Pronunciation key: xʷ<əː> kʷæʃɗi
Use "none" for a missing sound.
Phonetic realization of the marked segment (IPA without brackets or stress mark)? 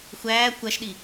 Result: æː